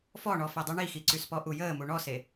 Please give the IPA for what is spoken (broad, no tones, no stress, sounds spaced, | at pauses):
f ɔ ɳ ɔ f ɛ dˤ y ɳ i x i ǀ y s p ɔ ʔ u j əː m u ɳ ɔ s e